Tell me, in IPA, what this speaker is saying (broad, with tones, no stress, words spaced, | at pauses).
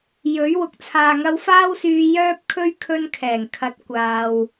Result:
jɵ˨˥ɥ wʊ˨k̚t͡sʰaː˨ŋɐ˧w faː˥wsyː˧ jœː˥p̚kʰɵ˥ɥ kʰɵ˧nkʰɛː˨˩ŋkʰɐ˨˥t̚ kʷaː˨w